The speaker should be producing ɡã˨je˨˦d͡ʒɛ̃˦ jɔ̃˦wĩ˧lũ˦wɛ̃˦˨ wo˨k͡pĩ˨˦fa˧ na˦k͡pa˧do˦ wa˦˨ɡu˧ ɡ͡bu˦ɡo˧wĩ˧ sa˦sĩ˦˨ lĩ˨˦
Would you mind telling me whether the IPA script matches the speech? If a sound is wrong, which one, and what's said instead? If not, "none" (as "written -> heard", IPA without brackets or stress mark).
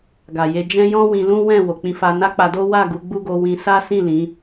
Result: ã˨ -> a˨